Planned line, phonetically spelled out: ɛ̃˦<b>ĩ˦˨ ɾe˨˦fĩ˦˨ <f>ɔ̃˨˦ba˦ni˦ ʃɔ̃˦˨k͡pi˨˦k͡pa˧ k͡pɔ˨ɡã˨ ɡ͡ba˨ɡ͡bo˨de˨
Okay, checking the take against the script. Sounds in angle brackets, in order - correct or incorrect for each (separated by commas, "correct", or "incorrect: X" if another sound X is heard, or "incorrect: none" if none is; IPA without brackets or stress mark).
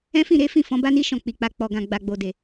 incorrect: f, correct